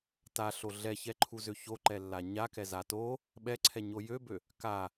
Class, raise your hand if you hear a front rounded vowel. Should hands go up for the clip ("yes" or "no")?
yes